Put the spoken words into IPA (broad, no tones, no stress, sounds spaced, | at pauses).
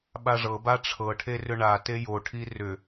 ɓ a ʐ ɤ b a ʈ͡ʂʰ ɤ ʈʰ e r ʏ ɳ a t e j o ʈʰ i r ʏ